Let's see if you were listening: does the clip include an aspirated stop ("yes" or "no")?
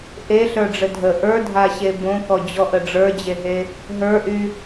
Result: no